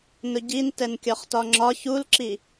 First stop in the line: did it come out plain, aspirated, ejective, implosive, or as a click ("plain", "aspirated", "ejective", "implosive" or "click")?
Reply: plain